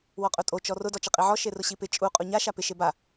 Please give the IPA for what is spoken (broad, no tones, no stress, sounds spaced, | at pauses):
w ɔ qʼ ʊ tʼ o t͡ʃ ɔ r ʊ d ɔ t͡ʃ ɪ qʼ i ʕ ɔ ʃ e r ʊ ɕ i p ɪ t͡ʃʼ u qʼ u ɲ a ʃ a p ɪ ʃ e b a